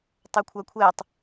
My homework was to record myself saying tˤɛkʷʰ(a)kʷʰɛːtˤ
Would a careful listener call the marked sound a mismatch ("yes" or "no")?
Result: no